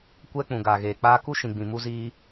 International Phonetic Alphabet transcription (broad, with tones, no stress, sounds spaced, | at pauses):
kʷ ɛ˦ k͡p ũ˨ ɡ a˨ ɣ eː˨ k͡p aː˦ k u˦ ʃ ĩ˨ ɡ͡b ĩ˨ m u˧ z iː˧